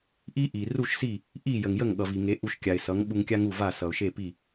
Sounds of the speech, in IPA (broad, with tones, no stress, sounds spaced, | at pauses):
ʔ i˥ ʔ i˩ r u˥˩ ʃ s i˥˩ | ʔ i˥˩ j ə˩ ŋ j ə˥˩ ŋ ɠ ʌ˩ v i˩ ŋ e˩˥ ʔ u˧ ʃ kʲ a˩ ɪ̯ s ʌ˩˥ ŋ ɓ u˧ ŋ kʲ a˥ ŋ u˥˩ v a˥˩ s ʌ˩ ʊ̯ ʃ e˥˩ p i˥˩